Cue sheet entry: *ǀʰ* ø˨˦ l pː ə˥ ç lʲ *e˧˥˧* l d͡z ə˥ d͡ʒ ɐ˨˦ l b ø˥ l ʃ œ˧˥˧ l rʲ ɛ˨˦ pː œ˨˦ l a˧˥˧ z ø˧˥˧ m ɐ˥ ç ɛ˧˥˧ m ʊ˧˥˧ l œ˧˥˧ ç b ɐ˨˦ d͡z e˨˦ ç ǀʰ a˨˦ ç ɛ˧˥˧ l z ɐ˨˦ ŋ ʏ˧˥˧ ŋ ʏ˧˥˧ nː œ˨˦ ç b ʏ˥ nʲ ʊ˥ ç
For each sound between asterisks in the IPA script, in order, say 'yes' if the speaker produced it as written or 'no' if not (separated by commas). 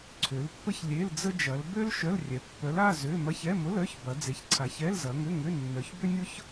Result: yes, yes